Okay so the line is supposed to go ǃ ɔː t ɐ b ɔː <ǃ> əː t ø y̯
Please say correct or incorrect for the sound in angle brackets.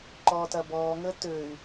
incorrect